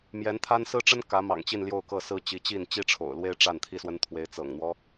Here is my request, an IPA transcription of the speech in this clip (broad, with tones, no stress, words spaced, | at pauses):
mjɛ˧˥nt̪ʰa˥n sɹ̩˥ʈ͡ʂə˥n kä˧˥mɑ̰˨˩ŋt͡ɕi˥˧n ljo˥˧ʊ̯kɤ˥˩sɹ̩˥ t͡ɕi˧˥t͡ɕi˥˩n t͡ɕi˥ʈ͡ʂʰo̰˨˩ʊ̯lwe˥ɪ̯ ʈ͡ʂa˥˩nt̪ʰi˥swə˥n t̪ʰwe˧˥ɪ̯t͡sɤ̰˨˩ŋn̪wɔ˦